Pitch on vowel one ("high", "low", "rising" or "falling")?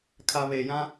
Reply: low